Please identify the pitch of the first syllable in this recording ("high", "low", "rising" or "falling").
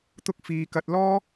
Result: high